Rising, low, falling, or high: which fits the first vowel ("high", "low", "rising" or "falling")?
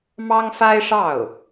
high